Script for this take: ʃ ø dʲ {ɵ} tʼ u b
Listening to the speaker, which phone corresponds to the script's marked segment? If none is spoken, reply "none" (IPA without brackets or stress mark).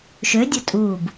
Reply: ɵ